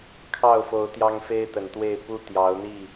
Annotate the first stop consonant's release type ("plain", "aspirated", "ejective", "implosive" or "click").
aspirated